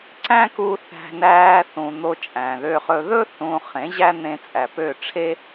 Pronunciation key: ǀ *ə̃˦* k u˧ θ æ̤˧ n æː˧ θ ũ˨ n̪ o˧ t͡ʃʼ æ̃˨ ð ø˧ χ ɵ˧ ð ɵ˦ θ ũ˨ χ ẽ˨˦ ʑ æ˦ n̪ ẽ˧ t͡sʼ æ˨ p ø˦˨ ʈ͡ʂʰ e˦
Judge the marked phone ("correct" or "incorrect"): incorrect